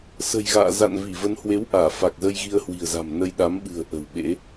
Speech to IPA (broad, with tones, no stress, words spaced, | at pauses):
sə̤˨˩jɣa̰ː˧˨ za̰˧˨nvi˧˩ və˨˦nhwe˨˦wʔaː˧˩ fa˨˩k̚zə˧j ɣi˧ə̯hwi̤˨˩ə̯za̤˨˩mnə˧j ɗa˨˦mɓɨ̤˨˩ə̯ ʔə̤˨˩w ɓḛ˧˥